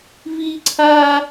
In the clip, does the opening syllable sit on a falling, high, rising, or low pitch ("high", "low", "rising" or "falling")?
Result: high